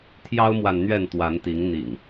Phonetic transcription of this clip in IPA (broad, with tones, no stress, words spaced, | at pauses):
t̪ʰjɑ˦ʊ̯mwa˨n n̪ɥɛ˥˨nt̪wa˨˦nt̪i˨˦ŋ n̪ḭ˨˩ŋ